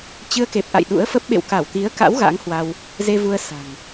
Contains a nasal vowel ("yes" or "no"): no